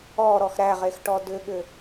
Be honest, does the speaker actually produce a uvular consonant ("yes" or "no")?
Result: yes